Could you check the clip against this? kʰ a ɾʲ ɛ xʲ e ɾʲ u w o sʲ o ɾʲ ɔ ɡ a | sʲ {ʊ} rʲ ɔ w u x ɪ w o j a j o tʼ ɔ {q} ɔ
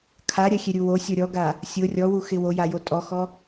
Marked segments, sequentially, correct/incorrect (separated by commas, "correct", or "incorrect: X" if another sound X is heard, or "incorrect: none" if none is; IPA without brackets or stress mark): correct, incorrect: x